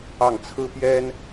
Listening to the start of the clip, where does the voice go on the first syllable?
falling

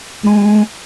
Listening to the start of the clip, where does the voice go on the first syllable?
high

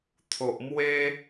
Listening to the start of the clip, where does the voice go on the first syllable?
low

